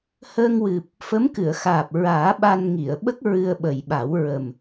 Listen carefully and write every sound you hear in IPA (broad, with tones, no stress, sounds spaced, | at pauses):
h əː˧ ŋ w ɨ˨˩ p̚ | f ə˧˥ m k ɨ˨˩˨ ə̯ x aː˨˩ p̚ ɹ aː˨˩˦ ɓ a˧ n ŋ i˨˩˨ ə̯ ɓ ə˦˥ k̚ ɹ ɨ˧ ə̯ ɓ ə˨˩ j ɓ a˨˩˦ w ɹ ə˨˩ m